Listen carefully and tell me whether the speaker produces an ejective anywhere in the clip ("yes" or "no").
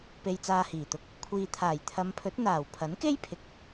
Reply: no